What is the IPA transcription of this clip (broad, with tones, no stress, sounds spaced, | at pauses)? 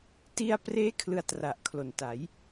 t i˧ a̯ p r eː˦˥ kʰ l ɯ˧ a̯ t r a˨˩ ʔ kʰ l o˨˩ n t a˩˦ j